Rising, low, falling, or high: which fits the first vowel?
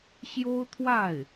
high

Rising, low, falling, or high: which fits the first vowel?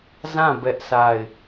falling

